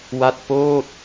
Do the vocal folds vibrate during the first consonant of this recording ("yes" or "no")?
yes